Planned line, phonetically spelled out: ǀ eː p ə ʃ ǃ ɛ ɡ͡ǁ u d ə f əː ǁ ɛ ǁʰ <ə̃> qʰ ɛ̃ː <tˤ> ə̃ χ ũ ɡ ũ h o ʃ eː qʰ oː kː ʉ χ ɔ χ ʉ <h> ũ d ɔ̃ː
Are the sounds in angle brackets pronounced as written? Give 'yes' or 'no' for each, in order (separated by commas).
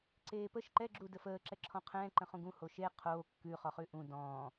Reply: no, no, no